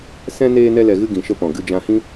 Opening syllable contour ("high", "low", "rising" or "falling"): high